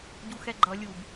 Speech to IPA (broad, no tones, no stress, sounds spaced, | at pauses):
ɟ u x ɛ ɡ͡ǃ ʌ lʲ u b